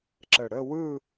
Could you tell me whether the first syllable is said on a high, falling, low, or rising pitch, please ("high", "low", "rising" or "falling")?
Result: low